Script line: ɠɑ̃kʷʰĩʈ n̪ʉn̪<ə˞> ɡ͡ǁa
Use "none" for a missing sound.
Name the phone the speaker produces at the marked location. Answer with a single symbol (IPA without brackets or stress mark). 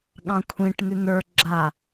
ə˞